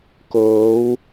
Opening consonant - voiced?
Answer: no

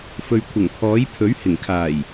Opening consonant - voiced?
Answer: no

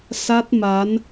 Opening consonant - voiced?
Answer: no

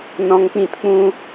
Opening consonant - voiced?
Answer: yes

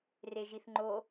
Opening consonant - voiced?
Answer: yes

